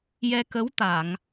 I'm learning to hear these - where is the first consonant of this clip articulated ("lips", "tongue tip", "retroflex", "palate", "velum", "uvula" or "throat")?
palate